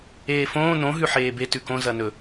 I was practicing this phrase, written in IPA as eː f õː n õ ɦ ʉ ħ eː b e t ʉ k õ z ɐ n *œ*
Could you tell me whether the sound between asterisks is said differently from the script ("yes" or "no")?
yes